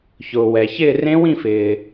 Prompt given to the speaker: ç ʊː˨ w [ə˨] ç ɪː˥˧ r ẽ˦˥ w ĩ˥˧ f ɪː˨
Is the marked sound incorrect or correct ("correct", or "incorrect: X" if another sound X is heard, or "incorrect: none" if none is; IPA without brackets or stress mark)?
incorrect: ɛ˨